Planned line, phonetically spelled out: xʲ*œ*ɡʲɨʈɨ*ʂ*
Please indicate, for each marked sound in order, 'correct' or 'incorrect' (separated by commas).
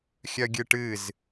correct, incorrect